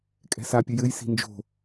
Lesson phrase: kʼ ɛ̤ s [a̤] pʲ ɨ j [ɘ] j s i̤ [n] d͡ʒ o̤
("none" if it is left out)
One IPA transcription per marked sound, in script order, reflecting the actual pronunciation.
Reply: a, ɘ, n

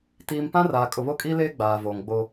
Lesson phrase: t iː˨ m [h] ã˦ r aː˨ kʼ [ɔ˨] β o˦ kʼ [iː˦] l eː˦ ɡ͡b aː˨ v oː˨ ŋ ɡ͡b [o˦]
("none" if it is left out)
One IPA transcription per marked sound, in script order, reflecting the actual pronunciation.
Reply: p, ʊ˨, iː˦, o˦

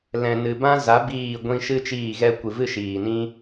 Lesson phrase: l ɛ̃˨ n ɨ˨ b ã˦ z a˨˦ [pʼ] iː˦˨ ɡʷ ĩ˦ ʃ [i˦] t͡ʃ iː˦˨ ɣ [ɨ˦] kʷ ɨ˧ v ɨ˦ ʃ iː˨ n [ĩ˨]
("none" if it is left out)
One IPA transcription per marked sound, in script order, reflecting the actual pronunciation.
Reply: b, ɨ˦, ɛ˦, ĩ˦

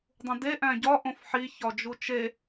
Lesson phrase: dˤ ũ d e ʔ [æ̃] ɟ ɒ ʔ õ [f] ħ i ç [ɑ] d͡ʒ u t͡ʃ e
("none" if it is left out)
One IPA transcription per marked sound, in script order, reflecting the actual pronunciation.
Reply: æ̃, f, ɒ

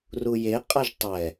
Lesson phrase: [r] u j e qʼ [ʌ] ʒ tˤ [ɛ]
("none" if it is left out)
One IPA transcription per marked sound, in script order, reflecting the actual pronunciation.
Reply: r, ʌ, ɛ

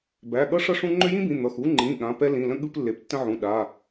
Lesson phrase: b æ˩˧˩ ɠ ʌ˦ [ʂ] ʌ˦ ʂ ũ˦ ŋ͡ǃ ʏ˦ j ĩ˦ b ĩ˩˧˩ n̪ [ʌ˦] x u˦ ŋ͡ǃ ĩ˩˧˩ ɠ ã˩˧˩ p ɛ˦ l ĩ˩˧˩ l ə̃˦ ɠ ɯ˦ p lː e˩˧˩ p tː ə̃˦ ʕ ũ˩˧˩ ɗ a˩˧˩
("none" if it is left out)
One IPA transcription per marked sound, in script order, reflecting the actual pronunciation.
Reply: ʂ, ʌ˩˧˩

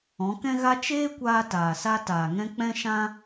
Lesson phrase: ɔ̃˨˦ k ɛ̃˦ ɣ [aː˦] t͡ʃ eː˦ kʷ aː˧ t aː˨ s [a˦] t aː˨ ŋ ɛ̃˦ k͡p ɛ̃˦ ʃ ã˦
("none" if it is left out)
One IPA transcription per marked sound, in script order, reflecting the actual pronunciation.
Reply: a˦, a˦

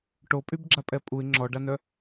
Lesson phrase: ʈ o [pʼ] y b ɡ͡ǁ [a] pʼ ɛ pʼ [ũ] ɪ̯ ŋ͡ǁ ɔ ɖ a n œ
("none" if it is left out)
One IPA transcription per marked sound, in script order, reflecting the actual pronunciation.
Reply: pʼ, a, u

